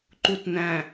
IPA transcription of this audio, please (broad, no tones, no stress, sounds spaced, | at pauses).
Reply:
ǃ u t n æ̃